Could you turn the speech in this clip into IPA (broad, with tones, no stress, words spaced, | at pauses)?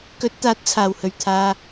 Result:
kɵ˨˥t̚t̪aː˨˥t̚t͡sʰaː˨˩whɵ˨˩ɥ t̪ʰaː˨